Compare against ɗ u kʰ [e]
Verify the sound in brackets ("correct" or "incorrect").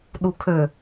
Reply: incorrect